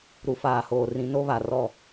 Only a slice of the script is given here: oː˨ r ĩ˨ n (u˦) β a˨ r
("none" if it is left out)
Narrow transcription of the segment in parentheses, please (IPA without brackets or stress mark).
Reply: o˦